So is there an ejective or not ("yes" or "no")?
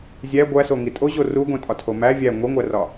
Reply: yes